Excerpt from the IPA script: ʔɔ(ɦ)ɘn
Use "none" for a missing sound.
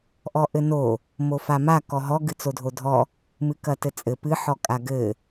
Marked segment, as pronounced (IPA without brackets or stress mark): ʔ